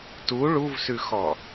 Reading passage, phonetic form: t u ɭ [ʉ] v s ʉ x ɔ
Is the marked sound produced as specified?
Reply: no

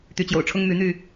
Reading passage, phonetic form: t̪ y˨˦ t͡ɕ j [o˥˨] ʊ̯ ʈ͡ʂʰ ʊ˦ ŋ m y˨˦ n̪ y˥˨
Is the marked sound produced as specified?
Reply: no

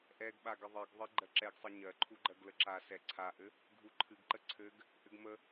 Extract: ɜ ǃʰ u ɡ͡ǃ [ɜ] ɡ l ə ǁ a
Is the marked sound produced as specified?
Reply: yes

